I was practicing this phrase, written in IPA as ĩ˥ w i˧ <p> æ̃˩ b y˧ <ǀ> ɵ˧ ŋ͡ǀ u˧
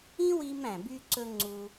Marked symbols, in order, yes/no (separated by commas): no, yes